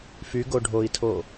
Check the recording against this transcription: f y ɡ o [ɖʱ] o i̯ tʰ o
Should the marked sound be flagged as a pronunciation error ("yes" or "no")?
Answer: no